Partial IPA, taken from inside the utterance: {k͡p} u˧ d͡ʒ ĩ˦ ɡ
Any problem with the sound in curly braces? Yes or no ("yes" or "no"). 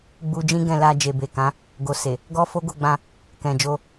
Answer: yes